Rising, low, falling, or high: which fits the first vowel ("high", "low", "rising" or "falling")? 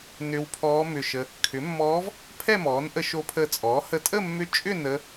rising